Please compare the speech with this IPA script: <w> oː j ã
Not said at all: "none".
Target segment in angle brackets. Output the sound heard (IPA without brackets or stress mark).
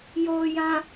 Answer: j